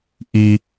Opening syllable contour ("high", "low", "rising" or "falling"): low